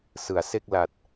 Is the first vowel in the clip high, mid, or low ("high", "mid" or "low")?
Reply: high